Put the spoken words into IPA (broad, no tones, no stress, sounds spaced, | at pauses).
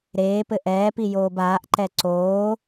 ɾ eː p ɘ ʔ ɛː p i j oː b aː ʔ ǃ ɛ ǀ oː